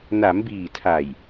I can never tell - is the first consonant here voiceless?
no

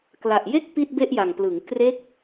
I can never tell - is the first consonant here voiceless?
yes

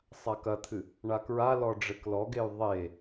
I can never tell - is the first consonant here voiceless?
yes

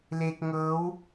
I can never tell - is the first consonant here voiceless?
no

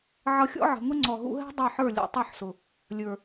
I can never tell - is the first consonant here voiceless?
no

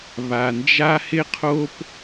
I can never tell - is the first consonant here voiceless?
no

